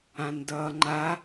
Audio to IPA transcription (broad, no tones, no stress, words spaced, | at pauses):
ãndʌːŋ͡ǃa